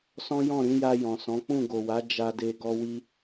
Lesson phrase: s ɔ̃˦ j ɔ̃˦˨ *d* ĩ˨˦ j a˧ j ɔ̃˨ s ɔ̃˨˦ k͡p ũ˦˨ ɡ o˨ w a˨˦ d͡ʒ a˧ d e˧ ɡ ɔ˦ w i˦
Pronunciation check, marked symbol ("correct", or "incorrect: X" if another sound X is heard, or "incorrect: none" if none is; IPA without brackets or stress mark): incorrect: ɾ